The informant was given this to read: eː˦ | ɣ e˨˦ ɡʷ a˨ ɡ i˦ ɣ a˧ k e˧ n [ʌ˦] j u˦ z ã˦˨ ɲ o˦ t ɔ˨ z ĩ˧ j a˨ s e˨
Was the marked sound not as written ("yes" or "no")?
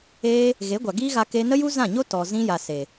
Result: yes